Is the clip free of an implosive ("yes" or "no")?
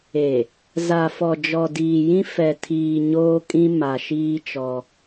yes